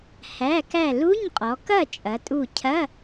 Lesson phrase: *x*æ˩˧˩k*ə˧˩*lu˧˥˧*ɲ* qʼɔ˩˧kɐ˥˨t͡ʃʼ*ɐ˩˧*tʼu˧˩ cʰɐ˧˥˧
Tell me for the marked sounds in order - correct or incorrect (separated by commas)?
incorrect, incorrect, correct, correct